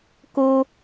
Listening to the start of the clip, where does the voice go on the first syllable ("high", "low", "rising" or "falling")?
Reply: high